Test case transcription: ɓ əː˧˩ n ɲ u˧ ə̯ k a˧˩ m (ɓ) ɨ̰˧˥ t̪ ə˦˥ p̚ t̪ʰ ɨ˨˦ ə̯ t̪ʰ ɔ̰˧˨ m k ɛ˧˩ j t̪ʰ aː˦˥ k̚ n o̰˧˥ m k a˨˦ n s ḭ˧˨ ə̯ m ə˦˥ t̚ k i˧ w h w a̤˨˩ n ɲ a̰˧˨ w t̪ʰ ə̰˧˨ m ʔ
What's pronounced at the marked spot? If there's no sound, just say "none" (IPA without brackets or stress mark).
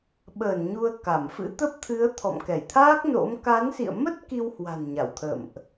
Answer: f